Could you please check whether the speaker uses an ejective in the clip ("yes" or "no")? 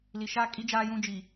yes